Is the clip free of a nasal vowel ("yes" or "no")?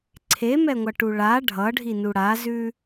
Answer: yes